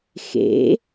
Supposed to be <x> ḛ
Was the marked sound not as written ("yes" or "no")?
no